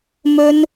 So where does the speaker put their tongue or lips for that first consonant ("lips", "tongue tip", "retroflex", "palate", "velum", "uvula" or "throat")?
lips